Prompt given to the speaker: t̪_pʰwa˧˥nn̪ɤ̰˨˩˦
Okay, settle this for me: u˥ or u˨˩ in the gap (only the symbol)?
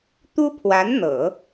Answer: u˥